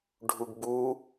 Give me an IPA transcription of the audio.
ɖʱuɡbu

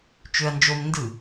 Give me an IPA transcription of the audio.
t͡ʃøɐ̯nd͡ʒom ndɯ

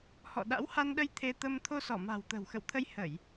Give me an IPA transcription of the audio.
hɔ̰˧˨ɗa̰˧˥wha˧nɗə˧j t̪ʰe˧t̪ə˧m t̪ʰo˧sɔ˧˩ ma̤˨˩wt̪ə̤˨˩w xə̰˧˨wt̪ʰə˧j hə˧˩˨j

